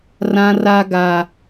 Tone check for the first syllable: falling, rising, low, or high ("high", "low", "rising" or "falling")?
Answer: high